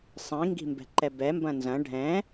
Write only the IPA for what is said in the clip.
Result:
sˤ ĩ ŋ ɡ i̤ m b ɛ̤ ǃ ɛ b ɛ m b ɐ̃ n z ɐ̃ ɖʱ ɛ̃

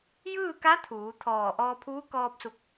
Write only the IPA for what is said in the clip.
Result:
j ɯː˥˨ k a˧˥ t̪ʰ uː˩˧ t̪ʰ ɔː˧˩ ʔ ɔː˧ pʰ uː˧˥ k ɔː˧ p̚ s u˧˩ k̚

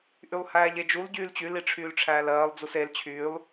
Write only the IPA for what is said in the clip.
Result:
ʔ y lˠ h æː ʎ e d͡ʒ u l ɟ yː l t͡ɕ y l i ʈ͡ʂʰ yː l ʈ͡ʂʰ æː l ɜː lˠ d͡z u s e l t͡ɕʰ yː lˠ

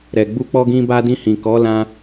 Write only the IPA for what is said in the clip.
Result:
ɾ ɛ˨ ɡ͡b u˧ k͡p ɔ˧ ɡ ĩ˧ b a˧ d ĩ˧ h ĩ˨ k ɔ˨˦ l ã˧

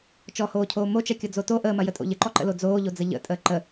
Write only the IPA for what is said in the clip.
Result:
t͡ʃ ɔ h oː cʰ oː m o t͡ʃ ɐ kʲ ɔ d͡z o t o ʔ əː m ɐ j ə tʼ o̰ ʎ ə ǃ ɔ ǃ ə̰ l o d͡z oː ʎ o d͡z ə ʎ ə̰ tʼ əː ǃ ə

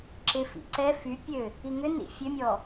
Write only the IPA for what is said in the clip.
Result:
ǁ ɪ f ḭ ǀ ɛ f y pʲ ø | i ŋ ʏ n ḭ fʲ ø mʲ ɔ

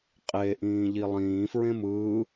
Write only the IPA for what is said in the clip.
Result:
qʼ e ʔ ĩː ʎ i lˠ ĩː f ɹ ẽ m ɯː

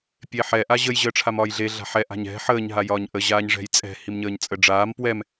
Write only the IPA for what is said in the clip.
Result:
pʲ e ħ ɛ ʔ a ʑ ə j ʑ əː ʈ͡ʂʰ a m ɒː j ɮ e ɮ a̤ ħ ɛ ʔ a̤ ɲ ɛ̤ ħ əː ɲ ɦ a j ɒː ɲ ʔ ə ʑ aː ɲ ʐ ɛ̤ j t͡sʼ ɛ̤ h i m ɲ əː ɲ t͡sʼ ə ɖ͡ʐ aː m p w ɛ m

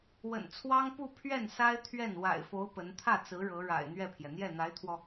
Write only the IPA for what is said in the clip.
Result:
w ə̰˨˩ n t͡sʰ w ɑ˥ ŋ p u˥˧ pʰ ɥ ɛ˥˩ n s a˥ ɪ̯ t̪ʰ ɥ ɛ˥˩ n w a̰˨˩ ɪ̯ f o˧˥ ʊ̯ p ə˧˥ n t̪ʰ ä˥˩ t͡s ɹ̩˧˥ ɻ ɤ˧˥ ɻ a̰˨˩ ɪ̯ n̪ ɥ ɛ˥˩ pʰ j ɛ˩ n̪ j ɛ˥˩ n̪ a˧˥ ɪ̯ t̪ʰ w ɔ˧

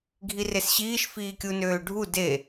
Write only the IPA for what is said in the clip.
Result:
ɡʱ i r e s ɕ iː ʃ f iː kʲ u n øː ɖʱ u d e

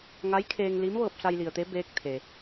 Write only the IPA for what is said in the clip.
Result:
ŋ a˧˥ j kʰ eː˧ ŋ l i˧˥ m ʋ ɤː˧ p̚ s a˧ j l i˩ ə̯ t̪ e˧˥ b eː˧˥ k̚ t̪ʰ e˩

